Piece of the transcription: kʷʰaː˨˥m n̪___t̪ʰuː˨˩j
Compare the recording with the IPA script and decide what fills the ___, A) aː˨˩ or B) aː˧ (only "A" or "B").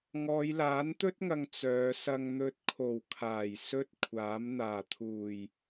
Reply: A